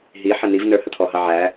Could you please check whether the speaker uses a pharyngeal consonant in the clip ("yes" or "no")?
yes